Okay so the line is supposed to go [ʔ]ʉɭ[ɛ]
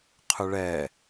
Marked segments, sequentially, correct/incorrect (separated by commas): incorrect, correct